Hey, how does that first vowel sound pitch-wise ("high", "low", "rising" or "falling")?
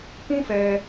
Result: high